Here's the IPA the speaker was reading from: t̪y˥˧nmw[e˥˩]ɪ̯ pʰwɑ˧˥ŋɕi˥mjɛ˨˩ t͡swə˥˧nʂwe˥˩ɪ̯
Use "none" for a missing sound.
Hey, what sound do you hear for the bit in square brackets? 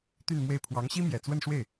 e˥˩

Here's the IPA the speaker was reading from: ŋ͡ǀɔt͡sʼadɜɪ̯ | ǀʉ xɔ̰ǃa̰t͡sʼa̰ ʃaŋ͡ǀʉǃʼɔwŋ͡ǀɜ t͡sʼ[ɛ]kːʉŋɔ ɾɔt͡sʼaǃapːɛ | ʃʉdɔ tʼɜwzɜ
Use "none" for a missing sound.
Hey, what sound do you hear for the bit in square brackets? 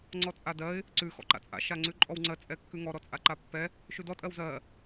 ɛ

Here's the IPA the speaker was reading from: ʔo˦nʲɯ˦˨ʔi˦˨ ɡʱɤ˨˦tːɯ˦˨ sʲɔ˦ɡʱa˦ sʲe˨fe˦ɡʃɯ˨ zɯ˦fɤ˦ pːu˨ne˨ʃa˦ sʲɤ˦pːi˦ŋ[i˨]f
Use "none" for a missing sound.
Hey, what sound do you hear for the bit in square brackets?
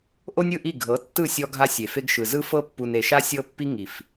i˨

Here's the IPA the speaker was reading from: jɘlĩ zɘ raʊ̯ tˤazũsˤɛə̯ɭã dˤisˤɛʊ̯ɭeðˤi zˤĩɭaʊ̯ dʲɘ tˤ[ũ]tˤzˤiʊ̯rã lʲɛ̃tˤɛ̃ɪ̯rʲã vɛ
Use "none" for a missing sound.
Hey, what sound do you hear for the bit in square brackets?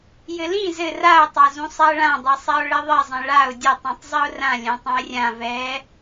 ũ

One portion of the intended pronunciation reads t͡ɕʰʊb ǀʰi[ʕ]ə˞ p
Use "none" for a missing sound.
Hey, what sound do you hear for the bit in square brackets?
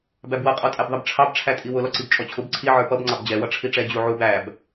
ʕ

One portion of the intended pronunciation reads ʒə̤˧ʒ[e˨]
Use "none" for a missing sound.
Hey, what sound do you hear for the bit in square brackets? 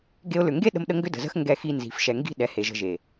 e˨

